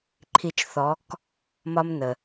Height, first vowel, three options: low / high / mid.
high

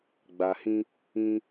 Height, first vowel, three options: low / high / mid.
low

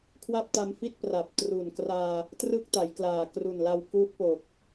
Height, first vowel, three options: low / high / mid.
low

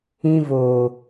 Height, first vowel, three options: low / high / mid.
high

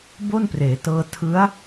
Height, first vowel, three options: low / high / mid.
mid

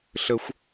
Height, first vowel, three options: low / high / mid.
mid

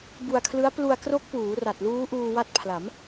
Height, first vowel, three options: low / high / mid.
high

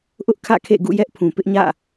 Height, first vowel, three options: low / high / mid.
high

